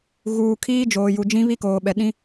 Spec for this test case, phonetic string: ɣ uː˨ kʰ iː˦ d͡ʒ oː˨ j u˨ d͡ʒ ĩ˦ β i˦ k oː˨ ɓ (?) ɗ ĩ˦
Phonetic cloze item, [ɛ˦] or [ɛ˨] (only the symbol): ɛ˨